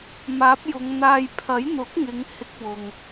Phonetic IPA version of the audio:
maː˨˥p̚ jʊ˨˧ŋn̪aː˧j pʰɐ˨˥jn̪ʊ˨˥k̚ŋɪ˨˧ŋ hɪ˥k̚wʊ˨ŋ

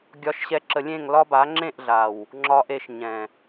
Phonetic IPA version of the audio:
ɡʲɒ˨ʃɕɛ˨ǁə˨ lʲẽ˦˨ŋlɒ˦ba˨˦ ŋ͡ǁẽ˦˨ʔɮa˨w | ŋ͡ǁɒ˨ʔ e˨ʃɲɛ̃˨

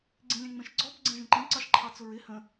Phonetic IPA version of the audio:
ɡ͡ǀĩlʲæ̃ŋ͡mɛ̃ʃɡ͡ǀɔb ɡ͡ǀɛ̃ʒə̃ǃĩ ǀɑʃǃʰɑt͡sʊɹɪ hə̃

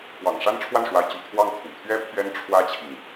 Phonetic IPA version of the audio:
pwɑ̰˨˩ŋ ʂa˥nʈ͡ʂʰwa˥˩nʂwa˧˥ɪ̯ t͡ɕy̰˨˩t̪ʰwɑ˥˩ŋ t̪ʰṵ˨˩t̪ʰɥɛ˥ pʰɥɛ˥nʈ͡ʂʰwä˥t͡ɕʰi˨ŋ

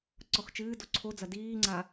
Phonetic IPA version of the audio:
ǀɔxt͡ʃɨːdo ǀʰod͡zɐ diːŋ͡ǀa

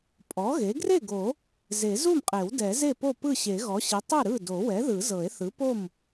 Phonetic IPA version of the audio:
pʼɔ˩˥ɣe˩˥ ɡre˥˩ɡo˨˩˦ | ze˨˩˦ zu˥˩mqʼe˨˩˦w dɛ˨˩˦ze˥˩po˥˩ pɯ˥˩ɕe˨˩˦ɣɔ˩˥ɕi˩˥ tˤɯ˥˩ɾɯ˥˩do˨˩˦wɛ˩˥ ðɯ˨˩˦zɤ˨˩˦e̯θɯ˩˥po˥˩m

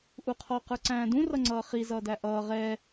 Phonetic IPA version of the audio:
ʔuqʰɔ qə˞ǀæ̃ːdũ rʌŋ͡ǀʌːχi zʌːdæʔʌː ʁɛ

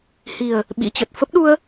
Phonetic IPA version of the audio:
hi˨˩ə̯ | ɓḭ˧˥t͡ɕə˨˩t̚ fə˦˥p̚ɗu˧ə̯

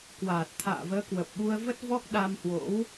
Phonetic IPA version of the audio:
kwaː˨˩t̚ t̪ʰa̰ː˧˨vəː˨˦kwə˨˩p̚ɓu˧ə̯ və˦˥t̚vɔ˦˥k̚ ɗa˧mhwo̰˧˥w

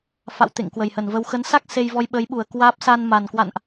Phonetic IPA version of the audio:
fa̰˧˨wt̪ḛ˧˨ŋ kwə˨˩jhə˧˩nvə˧w xə˨˦nsa˦˥k̚ se˧jvɔ˧jɓəː˨˦jɓu˧˩ə̯ kwaː˦˥p̚ sa˧n ma˨˩n kwa̰˧˨nʔ

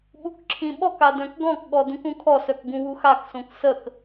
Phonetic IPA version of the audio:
ɓukǁʰĩɓɔka dœ̃kɡɔ̃kɠɔ dũkũkʰɔsœk ɡũwuxaksõk sək

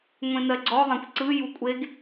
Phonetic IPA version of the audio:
ŋʷẽnɜɡ͡ǀɔðˤẽkʷ ǀɯ jukʷʼeɡ

